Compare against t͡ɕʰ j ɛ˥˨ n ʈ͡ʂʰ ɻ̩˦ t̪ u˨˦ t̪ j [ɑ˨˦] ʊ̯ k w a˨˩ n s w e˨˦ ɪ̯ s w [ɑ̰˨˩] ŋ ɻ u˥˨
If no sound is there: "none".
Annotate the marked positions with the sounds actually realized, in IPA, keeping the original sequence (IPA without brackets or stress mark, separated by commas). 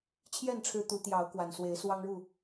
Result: ɑ˨˦, ɑ˦